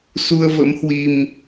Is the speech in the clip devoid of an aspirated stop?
yes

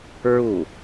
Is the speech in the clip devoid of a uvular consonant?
yes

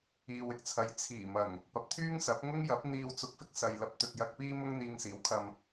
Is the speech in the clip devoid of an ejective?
yes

